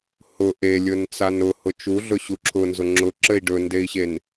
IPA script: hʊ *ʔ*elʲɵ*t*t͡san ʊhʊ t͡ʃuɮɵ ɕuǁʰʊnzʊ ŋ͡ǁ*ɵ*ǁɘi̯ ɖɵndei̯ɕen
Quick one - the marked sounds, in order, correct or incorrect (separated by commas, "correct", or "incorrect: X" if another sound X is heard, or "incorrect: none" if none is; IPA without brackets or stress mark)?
correct, incorrect: n, incorrect: ʊ